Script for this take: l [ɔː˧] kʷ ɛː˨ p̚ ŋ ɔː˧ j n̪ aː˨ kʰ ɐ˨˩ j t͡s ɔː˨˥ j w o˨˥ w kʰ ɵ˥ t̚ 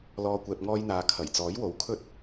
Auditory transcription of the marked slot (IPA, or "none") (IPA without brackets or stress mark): ɔː˨